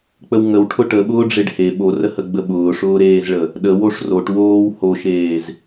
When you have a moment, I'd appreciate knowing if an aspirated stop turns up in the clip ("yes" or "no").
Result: yes